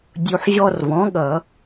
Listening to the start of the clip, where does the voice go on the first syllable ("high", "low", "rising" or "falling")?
low